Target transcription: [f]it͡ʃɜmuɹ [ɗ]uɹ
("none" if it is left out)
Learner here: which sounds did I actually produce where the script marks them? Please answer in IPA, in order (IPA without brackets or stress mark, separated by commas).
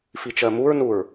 f, n